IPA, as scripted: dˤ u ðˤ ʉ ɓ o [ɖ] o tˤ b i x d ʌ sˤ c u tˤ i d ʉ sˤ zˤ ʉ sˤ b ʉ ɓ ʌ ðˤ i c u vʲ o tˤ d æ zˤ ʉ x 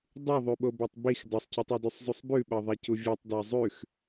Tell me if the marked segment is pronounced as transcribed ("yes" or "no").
no